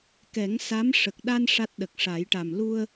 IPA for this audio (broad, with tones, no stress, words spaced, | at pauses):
kɛ˨˩˦ŋ sa˧˥m ʂə˨˩k̚ ɗa˧n ʂa˦˥t̚ɗə˨˩k̚ʂa˨˩˦jʈa˨˩m lu˧ə̯